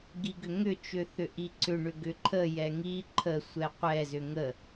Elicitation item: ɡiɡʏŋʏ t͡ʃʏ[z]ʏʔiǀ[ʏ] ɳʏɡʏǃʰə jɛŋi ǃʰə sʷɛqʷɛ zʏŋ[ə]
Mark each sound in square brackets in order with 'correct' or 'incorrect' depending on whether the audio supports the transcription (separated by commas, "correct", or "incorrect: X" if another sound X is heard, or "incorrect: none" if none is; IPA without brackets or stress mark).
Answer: incorrect: θ, correct, correct